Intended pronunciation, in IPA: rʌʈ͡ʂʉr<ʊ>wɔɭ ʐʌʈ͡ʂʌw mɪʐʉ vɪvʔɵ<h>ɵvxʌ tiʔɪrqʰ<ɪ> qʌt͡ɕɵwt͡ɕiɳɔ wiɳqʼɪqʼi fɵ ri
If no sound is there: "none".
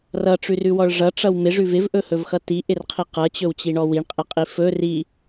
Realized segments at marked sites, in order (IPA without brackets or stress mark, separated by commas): ʉ, h, i